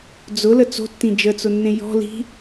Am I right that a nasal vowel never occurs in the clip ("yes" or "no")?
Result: no